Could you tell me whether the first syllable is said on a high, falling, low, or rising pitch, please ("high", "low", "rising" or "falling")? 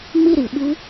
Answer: falling